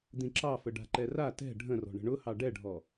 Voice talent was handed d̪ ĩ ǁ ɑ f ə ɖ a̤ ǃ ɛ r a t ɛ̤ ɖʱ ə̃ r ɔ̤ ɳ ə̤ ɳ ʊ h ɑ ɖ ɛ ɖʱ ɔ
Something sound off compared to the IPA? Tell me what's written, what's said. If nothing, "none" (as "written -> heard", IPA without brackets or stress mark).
none